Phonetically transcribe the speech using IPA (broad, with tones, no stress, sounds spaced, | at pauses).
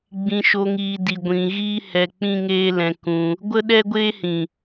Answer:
ɡ͡b ĩ˧ ʃ o˧ ŋ iː˧ d i˧ ɡʷ ĩ˧ ɣ iː˦ h ɛ˧ k͡p ĩ˦ ŋ eː˦ l ɛ̃˧ k ũ˧ | ɡʷ ə˦ ɗ ɛ˦ ɡʷ eː˦ h ĩ˨